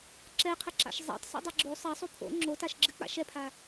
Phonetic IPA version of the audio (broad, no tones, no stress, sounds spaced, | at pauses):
ǁ ɛ qʰ ə ǁ a̰ ʃ zˤ a̰ tˤ s o̰ dˤ ɨ ɡ͡ǁ o sˤ ɐ sˤ o pʰ o̰ ŋ͡ǁ o t a ʃ ɡ͡ǁ ɨ k͡p a̰ ʃ ɛ pʰ a